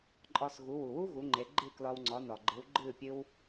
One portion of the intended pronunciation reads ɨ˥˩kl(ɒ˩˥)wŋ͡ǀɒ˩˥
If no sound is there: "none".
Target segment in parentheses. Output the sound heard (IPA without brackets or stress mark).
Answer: ɒ˧